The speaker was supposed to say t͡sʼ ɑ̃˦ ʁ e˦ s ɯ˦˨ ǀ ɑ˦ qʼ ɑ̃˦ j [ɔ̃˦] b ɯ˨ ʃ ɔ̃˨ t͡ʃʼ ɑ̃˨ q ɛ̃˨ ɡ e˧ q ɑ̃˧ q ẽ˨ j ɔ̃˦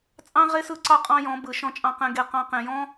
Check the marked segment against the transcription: incorrect: ɔ̃˨˦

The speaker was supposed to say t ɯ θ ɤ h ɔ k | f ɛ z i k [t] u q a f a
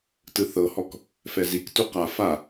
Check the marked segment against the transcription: correct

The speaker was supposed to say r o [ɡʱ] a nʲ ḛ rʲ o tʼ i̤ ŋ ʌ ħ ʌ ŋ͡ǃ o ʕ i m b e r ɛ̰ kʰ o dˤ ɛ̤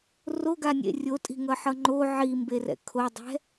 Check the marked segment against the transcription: incorrect: ɡ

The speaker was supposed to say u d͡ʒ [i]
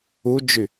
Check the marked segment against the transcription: incorrect: y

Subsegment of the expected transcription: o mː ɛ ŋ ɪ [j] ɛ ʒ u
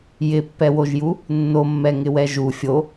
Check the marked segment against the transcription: incorrect: w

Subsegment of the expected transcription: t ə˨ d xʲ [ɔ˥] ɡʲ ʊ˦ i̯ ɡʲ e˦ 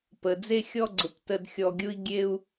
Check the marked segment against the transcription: incorrect: ɔ˨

